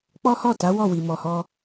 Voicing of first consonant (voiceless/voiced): voiceless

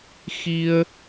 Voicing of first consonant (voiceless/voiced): voiceless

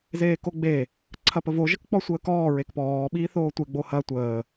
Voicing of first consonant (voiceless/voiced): voiced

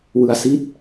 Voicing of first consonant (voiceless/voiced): voiced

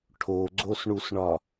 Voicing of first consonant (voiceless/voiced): voiceless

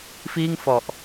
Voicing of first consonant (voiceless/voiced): voiceless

